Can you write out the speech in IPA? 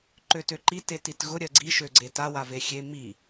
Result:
ǃ ø t ø ǃ i t e t i t ɣ ʊ ɾʲ ɜ ɡ͡ǀ i ʃ ø ɡ͡ǀ e t a w a v e xʲ e m i

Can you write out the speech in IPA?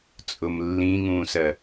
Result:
t͡sʼ ʊ m lː ĩ ŋ ũː s ɜ

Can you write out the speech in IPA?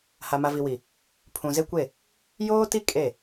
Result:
h a˨ m a˨ v i˨ w i˨ | pʰ ũ˨ z e˦ kʷ e˦˨ | j oː˦ t i˦ kʼ e˦˨

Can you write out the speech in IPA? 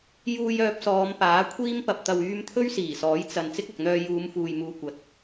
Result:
j uː˧ j œː˧ p̚ s ɔː˨˧ m p aː˨˥ kʷʰ iː˥ m p ɐ˨ p̚ t̪ ɐ˨ w yː˧ m t̪ʰ ɵ˥ ɥ s iː˨˩ s ɔː˨˥ j t͡s ɐ˨ n t͡s ɪ˥ k̚ ɐ˨ k̚ n̪ œː˧ j uː˨˧ m f uː˨ j m uː˨ kʷ ɐ˨ t̚

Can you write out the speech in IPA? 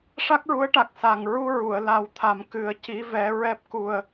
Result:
ʂ a˦˥ k̚ ɹ u˧˥ ə̯ ʈ a˨˩ k̚ s a˨˩ ŋ ɹ u˧ ɹ u˨˩˨ ə̯ l a˨˩˦ w t̪ʰ a˨˩ m k ɨ˨˩ ə̯ c i˧˥ v ɛ˧˥ ɹ ɛ˦˥ p̚ k u˧ ə̯

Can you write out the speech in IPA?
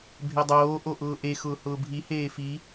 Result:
bʱ e dˤ oː ʔ o ʔ ʊː ʔ e x ʊː h ʊː bʱ i h eː f i

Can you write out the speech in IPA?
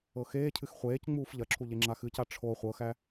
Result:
ɤ x eː cʰ ɨ x χʷ eː c ŋ͡m uː f ʎ ɐ ǁʰ u ʎ e ŋ͡ǁ a x ɨ c a ʈ͡ʂʰ o χʷ ɤ x æ

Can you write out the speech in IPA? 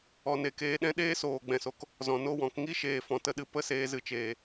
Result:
ɔ˨ n e˨ k eː˧ ɗ ɛ̃˦ ɗ eː˦ s oː˨ ɡ͡b ɛ̃˨ s o˧ k | z ɔ̃˨ n o˦˨ w ɔ̃˨˦ k ŋ i˦ ʃ eː˨ f ɔ̃˨ t ə˦ ɗ ɨ˧ p ə˦ s eː˧ z ɨ˧ t͡ʃ eː˨

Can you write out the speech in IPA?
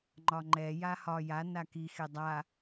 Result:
ŋ͡ǃ ɒ ŋ͡ǃ ɛ j a h ɒ j a n a k i x e dˤ a

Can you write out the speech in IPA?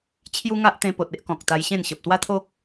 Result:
t͡ɕʰ j u˦ ŋ a˦ ʔ t̪ ẽ˧ p o˨ t̚ e˦ ʔ k ɔ̃˨ k̚ t̪ a˧ j ɕ ẽ˥˧ n ɕ ə˨ p̚ t̪ w a˦ t̪ʰ o˦ k̚

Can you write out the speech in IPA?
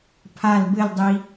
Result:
pʰ a l b ɘ l dˤ i

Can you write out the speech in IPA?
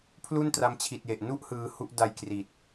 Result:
pʰ l u˥˩ n t r a˦˥ m t͡ɕʰ i˨˩ t̚ j e˨˩ ʔ n u˥˩ ʔ h ɯː˧ h u˥˩ ʔ d a˧ j k r i˨˩ t̚

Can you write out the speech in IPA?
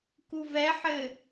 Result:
k u v ɛ ħ ɘ

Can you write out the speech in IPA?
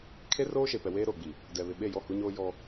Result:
kʰ e˦ r oː˦ ʃ e˨ p ɛ˨ w eː˦ ɾ oː˨ ɡ͡b i˨ | d ɛ˨ β ɪ˨ ɓ e˦˨ j ɔ˦˨ h u˦ ɲ oː˦ j ɔ˦

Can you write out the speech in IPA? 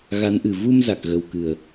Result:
ɣ a˨˦ n ʔ ɨ˨˩ v u˧ m z a˨˩ k̚ ɣ ə˨˩ w k ɨ˨˩ ə̯

